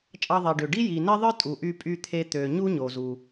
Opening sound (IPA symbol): t͡ʃʼ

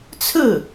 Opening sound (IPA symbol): t͡sʰ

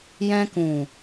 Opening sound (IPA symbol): j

